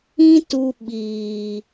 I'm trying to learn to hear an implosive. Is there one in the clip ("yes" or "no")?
yes